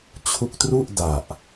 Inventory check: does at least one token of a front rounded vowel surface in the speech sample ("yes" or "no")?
no